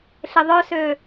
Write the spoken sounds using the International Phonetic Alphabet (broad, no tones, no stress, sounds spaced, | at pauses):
ɬ ɪ ðˤ œ s ø